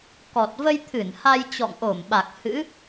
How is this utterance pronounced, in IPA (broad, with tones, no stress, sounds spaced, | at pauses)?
k ɔ˨˩ t̚ v ə˧ j t̪ʰ ɨ˧˩ n h a˧ j t͡ɕ ɔ̰˧˨ ŋ ʔ o˧˩ m ɓ a˨˩ k̚ h ɨ̰˧˥